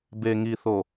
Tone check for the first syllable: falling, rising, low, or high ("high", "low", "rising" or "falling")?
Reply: low